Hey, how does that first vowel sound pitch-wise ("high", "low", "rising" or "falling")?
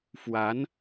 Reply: rising